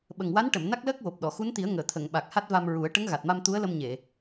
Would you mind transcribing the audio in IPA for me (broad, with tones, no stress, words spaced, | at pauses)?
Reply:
ɓə˨˩ŋwa˧˥nʈə˨˩˨m na˦˥k̚ləː˦˥k̚ wo˨˩p̚ɗɔ˨˩˨ xu˧˥nt̪i˨˩˦ə̯ŋəː˨˩˨ t̪ʰə˨˩˨ŋɓa˨˩k̚ ha˦˥t̚va˧mɹu˨˩˦ə̯ ʈə˧˥ŋɣa˨˩t̚ma˧m t̪u˧˥ə̯lə˧mɲe˨˩˨